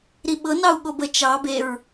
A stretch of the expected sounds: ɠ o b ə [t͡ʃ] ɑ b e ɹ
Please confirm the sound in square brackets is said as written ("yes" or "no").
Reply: yes